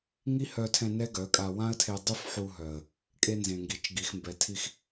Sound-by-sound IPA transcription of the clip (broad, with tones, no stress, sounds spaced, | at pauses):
ŋ i˦ h œ˧ tʰ ɛ̃˧ n ɛ˦ ɡ œ˨˦ kʼ a˧ w ã˦ ə̯ tʰ e˧ dˤ y˦ f ħ u˧ ɦ œ˨ ə̯ | kʼ e˧ n z ẽ˨ ŋ ɡ i˨ t͡ʃ ɡ i˨ x m b ɛ˨ tʰ i˧ x